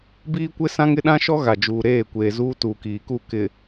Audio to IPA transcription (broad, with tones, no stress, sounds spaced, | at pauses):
b iː˦ kʷ ɪ˦ s ã˦ ŋ ɪ˦ ɗ ã˦ ʃ ɔ˦ ɣ a˨ d͡ʒ uː˨ ɾ eː˦˨ kʷ eː˨ z uː˦ t uː˨ k iː˨ k u˦˨ k ɪ˨